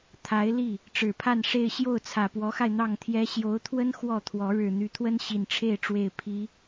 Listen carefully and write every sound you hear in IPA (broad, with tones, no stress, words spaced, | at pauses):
t̪ʰa˧˥ɪ̯li˥˩ | ʈ͡ʂɻ̩˨˩pʰa˥˧n ʂe˥˧ɪ̯ ɕjo˥˩ʊ̯t͡sʰä˨˩pwɔ˧˥xa˧ɪ̯ n̪ɑ˥˩ŋt̪ʰjɛ˥ ɕjo˧˥ʊ̯t̪ʰwə˥n xwɔ˥˩t̪ʰwɔ˧˥ ɻɻ̩˨˩n̪y˧˥t̪ʰwə˥n ɕi˨˩nʈ͡ʂʰe˥˩ɪ̯ʈ͡ʂwe˨˩ɪ̯ pʰi˧˥